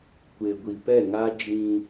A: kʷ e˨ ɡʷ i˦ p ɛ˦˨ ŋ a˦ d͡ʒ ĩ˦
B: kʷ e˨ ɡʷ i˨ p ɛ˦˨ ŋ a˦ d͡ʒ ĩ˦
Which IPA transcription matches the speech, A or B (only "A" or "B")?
B